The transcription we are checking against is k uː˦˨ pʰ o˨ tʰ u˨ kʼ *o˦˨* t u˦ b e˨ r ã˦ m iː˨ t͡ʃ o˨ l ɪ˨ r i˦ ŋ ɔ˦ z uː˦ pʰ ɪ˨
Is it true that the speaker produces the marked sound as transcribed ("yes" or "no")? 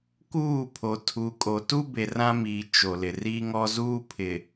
no